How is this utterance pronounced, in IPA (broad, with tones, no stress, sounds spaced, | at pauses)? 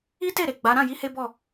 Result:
i˦ t e˦˨ ɾ e˨ ɡ͡b a˨˦ ɾ ã˦˨ j i˨˦ h e˦ b ɔ˦˨